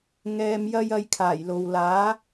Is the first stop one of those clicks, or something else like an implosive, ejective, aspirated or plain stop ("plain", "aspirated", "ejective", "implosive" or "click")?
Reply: aspirated